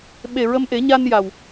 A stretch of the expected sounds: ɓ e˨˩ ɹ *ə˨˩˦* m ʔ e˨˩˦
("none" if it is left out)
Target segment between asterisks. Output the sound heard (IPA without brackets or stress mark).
ə˧